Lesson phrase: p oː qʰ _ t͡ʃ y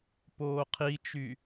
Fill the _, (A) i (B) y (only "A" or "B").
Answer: A